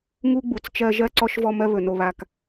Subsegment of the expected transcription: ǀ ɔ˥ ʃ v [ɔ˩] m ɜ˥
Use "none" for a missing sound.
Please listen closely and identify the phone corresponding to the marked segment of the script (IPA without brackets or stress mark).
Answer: ɔ˦